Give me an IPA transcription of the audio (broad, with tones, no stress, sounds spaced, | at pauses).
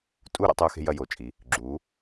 tʼ u˦˨ ɾ ḛ˥ tˤ uː˥ x e̤˥ j ɐ˦˨ j o˩ t͡ʃʼ i˩˥ | ɡ͡ǁ uː˩˥